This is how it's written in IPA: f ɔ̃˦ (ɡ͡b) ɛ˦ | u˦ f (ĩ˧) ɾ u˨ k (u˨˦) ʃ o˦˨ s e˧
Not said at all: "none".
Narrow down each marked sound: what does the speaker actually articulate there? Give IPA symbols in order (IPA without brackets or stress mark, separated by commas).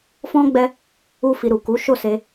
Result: ɡ͡b, i˧, u˨˦